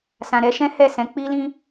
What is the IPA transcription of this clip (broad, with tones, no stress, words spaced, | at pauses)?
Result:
sã˨ɾɛ˨˦ʃɛ̃˦ hɛ˦˨sɛ̃˨˦ k͡pi˦lĩ˦